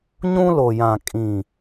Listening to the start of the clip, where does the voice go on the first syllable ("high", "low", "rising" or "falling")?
high